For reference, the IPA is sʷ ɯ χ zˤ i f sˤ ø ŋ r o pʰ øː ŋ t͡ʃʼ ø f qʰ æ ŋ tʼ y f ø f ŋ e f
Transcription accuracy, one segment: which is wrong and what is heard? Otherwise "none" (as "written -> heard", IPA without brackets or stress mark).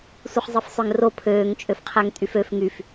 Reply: e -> y